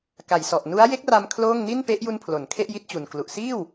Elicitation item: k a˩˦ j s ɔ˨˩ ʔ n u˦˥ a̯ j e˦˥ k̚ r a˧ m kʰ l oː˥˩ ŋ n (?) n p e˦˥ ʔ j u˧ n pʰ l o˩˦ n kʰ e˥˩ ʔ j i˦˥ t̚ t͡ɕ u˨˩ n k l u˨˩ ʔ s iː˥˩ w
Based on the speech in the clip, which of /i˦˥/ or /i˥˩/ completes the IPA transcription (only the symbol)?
i˥˩